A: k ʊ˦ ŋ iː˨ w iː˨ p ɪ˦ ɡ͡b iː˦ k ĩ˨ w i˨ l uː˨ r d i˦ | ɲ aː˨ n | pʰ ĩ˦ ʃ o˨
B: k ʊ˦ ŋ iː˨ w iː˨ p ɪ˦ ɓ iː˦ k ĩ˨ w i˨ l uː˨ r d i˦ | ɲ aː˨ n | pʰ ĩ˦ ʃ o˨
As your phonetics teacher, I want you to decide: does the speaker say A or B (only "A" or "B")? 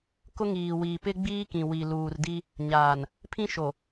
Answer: A